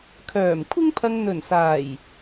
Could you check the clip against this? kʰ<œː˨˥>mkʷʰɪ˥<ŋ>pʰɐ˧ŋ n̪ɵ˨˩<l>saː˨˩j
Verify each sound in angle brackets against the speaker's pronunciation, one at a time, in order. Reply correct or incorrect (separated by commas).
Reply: incorrect, correct, incorrect